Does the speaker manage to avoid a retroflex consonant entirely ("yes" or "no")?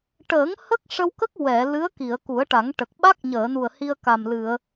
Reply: no